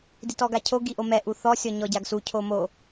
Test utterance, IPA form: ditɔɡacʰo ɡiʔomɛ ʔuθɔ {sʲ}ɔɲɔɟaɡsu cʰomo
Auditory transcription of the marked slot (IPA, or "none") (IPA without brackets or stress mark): sʲ